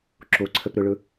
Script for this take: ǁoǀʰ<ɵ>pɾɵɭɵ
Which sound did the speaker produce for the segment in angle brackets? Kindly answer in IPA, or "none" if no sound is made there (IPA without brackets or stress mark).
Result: ə